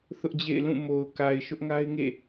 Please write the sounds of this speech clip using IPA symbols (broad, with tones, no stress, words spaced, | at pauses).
θʊ˦ʔd͡ʑḛ˦˨ɪ̯lũ˦˨ mo˨ʊ̯ka˨ɪ̯ ʃʊ˦ʔŋa˦ɪ̯ŋḛ˦˨